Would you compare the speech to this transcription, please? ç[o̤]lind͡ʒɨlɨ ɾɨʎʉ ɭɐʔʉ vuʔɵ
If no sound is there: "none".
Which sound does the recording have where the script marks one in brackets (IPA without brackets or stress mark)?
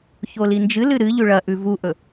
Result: o